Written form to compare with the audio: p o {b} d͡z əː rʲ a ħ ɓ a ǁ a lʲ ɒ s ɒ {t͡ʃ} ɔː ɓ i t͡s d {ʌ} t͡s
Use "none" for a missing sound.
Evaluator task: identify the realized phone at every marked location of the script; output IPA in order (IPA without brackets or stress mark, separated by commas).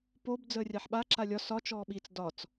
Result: b, t͡ʃ, ɒ